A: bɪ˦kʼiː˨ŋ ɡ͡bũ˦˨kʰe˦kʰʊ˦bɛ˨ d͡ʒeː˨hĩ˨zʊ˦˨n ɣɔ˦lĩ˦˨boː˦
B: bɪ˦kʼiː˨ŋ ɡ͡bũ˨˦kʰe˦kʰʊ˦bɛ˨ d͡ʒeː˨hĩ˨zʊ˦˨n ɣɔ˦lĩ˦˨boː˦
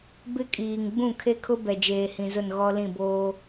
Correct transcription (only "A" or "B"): A